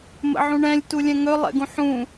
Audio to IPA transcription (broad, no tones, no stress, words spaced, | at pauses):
mə̰ʕũɳɛ̃lʲ tulʲɛ̃ŋɵ lˠɛ̰ɡũħũ